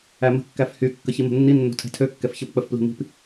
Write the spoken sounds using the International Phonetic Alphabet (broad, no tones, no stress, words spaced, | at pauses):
æmə̤ kːæfhy kːəçimə̤nːi nːo̤tʰɛ̤tʰø kːɛfçəp k͡pəfpli̤mi̤p